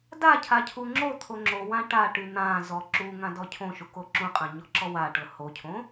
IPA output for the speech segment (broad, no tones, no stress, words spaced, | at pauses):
dacʰa cʰuŋ͡ǁot̪ʰo ŋ͡ǁowã ʈa ʈyn̪ãzɔ ǁu ŋãdɔcʰõʃu koǁũqʼã ɲɔǁɔwaʈɤ hocʰõ